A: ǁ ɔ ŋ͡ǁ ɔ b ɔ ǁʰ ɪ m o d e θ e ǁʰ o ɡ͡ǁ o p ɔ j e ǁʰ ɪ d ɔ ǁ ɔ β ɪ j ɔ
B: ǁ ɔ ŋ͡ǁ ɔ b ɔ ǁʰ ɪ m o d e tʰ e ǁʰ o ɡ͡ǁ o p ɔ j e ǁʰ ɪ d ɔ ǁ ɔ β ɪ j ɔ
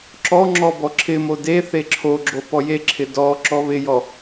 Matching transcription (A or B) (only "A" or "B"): A